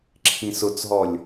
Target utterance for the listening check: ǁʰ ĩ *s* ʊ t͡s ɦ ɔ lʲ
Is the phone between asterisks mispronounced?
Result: no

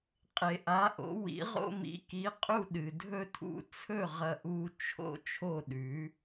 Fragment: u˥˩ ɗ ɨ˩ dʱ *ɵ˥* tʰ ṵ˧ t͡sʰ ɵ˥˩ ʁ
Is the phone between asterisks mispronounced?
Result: no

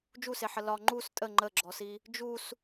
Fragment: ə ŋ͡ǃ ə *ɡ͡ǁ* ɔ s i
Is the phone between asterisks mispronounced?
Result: no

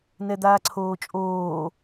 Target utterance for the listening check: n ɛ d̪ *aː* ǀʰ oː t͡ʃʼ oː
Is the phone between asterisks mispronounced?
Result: no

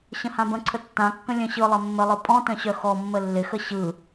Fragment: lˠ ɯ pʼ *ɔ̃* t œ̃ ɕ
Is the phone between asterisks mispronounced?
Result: no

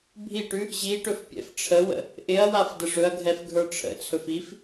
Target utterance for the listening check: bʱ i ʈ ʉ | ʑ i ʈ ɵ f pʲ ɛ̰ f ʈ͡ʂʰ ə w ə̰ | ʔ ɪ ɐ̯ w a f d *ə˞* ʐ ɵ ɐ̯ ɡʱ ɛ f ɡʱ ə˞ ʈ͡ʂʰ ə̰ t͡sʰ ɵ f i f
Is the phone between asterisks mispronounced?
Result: yes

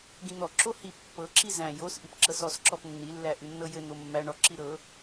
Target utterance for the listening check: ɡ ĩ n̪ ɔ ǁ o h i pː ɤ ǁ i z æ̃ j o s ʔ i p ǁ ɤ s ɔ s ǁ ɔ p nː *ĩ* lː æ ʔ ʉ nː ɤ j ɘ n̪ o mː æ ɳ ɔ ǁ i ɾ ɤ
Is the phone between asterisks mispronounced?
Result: yes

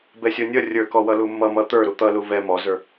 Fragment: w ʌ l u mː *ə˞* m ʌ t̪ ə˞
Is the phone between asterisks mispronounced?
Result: yes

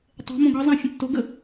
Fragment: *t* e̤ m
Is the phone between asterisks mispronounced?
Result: yes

